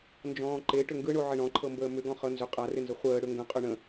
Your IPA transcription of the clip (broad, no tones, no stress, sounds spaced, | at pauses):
n d͡ʒ ɔ̃ː ǃ e ʈ ʏ ŋ ɡ ɯ ɳ o ʕ ɪ ɳ ɔ̃ ǃʰ ɤ m b əː m ʏ ɡ ɔ̃ χ ɤ n z ʏ qʼ a r ɪ n z ə χʷ əː ɽ ʏ ŋ ɡ ə̃ qʼ ʏ ɳ ə̃